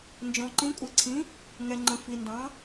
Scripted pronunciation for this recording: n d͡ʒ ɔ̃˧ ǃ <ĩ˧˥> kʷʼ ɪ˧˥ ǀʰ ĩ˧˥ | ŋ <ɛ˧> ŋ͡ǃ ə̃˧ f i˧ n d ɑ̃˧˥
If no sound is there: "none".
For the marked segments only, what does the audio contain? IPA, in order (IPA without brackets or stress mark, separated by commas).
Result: ĩ˧˥, ɛ˧